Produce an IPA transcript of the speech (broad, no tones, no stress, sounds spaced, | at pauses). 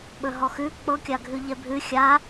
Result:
ɓ ɵ ɦ ɔ x ʉ k͡p ɤ kʲ a ɡʱ ʉ ʎ ɛ bʱ ʉ xʲ a